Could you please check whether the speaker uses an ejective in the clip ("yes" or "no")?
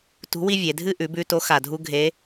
no